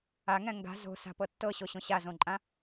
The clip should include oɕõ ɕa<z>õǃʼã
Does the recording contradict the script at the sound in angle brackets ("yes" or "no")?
no